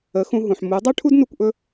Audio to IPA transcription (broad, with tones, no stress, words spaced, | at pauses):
ə˨˦xũ˧ɦũ˨ħmu˨˦ dˤʉ˦ʈʰu˦dnu˧kʷʔɵ˧